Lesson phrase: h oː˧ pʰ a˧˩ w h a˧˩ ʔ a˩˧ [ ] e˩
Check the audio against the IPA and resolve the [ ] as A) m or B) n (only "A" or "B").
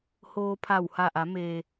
A